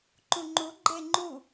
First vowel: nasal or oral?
nasal